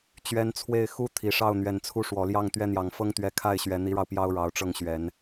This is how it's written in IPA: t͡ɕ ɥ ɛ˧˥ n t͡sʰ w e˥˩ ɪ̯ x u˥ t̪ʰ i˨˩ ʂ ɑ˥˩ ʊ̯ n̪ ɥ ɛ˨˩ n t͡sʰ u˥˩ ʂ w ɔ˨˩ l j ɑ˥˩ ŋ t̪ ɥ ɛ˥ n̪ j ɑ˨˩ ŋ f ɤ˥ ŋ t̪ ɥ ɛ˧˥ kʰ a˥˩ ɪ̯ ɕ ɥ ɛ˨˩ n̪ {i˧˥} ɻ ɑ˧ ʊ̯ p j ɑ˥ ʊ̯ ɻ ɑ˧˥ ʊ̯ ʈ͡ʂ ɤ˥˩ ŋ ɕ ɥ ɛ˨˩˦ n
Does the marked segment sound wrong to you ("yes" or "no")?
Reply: no